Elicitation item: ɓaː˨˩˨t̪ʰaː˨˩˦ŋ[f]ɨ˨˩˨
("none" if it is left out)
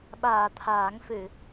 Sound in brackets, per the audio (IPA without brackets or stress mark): f